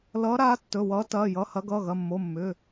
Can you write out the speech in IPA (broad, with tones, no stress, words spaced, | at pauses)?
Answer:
lʌː˨˦ɾaː˨˦ tːɵ˩˧˩wʌː˨˦tɐː˩˧˩jʌ˩˧˩ hɐ˨˦ɡʌː˩˧˩ɣɐ˩˧˩mːo˩˧˩ mːʏː˩˧˩